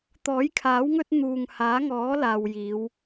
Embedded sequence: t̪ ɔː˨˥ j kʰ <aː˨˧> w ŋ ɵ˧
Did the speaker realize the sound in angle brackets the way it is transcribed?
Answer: no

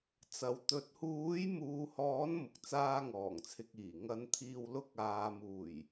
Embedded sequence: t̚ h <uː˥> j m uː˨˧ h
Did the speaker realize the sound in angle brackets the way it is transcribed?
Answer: no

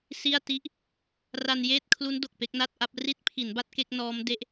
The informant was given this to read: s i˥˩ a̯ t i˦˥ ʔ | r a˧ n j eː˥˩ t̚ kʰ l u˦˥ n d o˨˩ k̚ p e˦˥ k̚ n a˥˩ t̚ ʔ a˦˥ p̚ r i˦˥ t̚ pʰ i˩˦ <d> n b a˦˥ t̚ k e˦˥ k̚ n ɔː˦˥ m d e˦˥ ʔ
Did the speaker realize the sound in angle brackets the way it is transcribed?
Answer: no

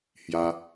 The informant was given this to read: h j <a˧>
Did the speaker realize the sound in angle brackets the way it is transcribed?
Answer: yes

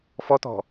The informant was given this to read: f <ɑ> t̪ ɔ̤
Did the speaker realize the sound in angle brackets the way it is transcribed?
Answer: no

